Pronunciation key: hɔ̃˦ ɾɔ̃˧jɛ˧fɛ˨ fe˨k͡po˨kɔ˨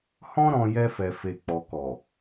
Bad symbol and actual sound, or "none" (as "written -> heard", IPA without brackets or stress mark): o˨ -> ɔ˨